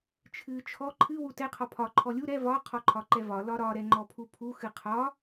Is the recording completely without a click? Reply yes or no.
no